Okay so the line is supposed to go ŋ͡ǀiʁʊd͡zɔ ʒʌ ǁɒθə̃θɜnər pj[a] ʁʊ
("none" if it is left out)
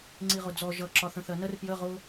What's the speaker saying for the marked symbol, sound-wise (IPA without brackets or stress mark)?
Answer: ə